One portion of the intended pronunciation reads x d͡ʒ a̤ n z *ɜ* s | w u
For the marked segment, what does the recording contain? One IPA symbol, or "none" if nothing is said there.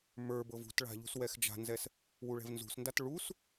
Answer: ɛ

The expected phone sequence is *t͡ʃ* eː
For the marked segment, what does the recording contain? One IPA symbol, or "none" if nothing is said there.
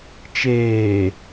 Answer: t͡ʃ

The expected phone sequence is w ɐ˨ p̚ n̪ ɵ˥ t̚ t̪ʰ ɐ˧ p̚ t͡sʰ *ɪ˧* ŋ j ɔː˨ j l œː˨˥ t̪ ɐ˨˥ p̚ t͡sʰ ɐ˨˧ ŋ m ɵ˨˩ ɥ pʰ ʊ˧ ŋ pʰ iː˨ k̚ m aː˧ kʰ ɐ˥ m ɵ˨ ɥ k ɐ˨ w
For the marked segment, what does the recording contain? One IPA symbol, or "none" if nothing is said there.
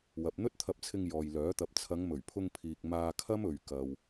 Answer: ɪ˧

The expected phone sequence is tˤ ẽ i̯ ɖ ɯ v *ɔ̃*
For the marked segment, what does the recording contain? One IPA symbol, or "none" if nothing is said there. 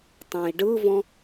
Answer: ɔ̃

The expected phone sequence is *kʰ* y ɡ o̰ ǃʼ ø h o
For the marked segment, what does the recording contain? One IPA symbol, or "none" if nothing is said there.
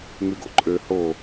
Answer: ŋ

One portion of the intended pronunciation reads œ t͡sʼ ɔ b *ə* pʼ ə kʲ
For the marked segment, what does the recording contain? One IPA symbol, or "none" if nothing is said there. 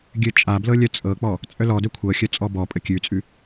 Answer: ɔ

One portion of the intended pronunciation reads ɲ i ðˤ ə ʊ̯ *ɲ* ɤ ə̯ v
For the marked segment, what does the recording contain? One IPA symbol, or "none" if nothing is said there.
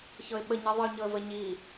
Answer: ɲ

